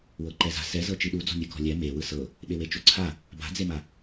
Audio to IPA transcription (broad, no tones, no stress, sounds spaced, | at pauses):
w ɤ ǃ ɛ z a̤ s ɛ z ɤ t͡ʃ i ɗ u d͡z ɔ̤ mʲ ɯ k ɔ̤ lʲ ɛ m e w ɯ s ɤ | ɓ e w e t͡ʃ o ǀʰ a | b a̤ d͡z e m a